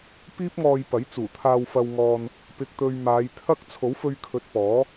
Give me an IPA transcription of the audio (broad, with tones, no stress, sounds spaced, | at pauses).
p iː˥ p̚ ŋ ɔː˧ j p ɐ˨˥ j t͡s uː˨˩ t̪ʰ aː˧ w f ɐ˧ w ŋ ɔː˧ n | p ɪ˨ k̚ t̪ ɵ˨ ɥ m aː˨˧ j t̪ʰ ɐ˥ k̚ t͡sʰ o˨˥ w f ɵ˧ ɥ kʰ ɵ˨ t̚ p ɔː˨˥